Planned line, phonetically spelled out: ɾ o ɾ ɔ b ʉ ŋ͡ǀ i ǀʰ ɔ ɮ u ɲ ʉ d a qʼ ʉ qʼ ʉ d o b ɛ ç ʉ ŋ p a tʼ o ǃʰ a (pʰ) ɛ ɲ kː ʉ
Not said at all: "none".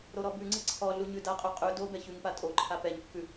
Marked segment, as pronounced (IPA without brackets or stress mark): p